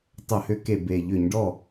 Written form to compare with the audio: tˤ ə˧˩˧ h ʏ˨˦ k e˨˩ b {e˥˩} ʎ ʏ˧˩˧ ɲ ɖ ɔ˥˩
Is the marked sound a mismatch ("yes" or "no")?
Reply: yes